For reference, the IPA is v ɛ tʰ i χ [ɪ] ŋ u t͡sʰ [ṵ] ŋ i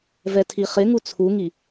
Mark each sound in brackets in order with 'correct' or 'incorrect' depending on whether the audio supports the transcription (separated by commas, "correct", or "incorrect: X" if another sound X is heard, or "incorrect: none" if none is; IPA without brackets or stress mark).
correct, incorrect: u